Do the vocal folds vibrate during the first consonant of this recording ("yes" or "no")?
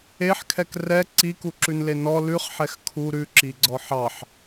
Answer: no